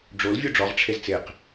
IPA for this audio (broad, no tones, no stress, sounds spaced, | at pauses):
ɖ͡ʐ o l vʲ u ɖ͡ʐ ɔ ʁ ʈ͡ʂʰ e z t͡s e q